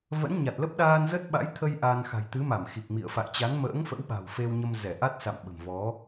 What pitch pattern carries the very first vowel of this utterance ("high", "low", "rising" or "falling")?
rising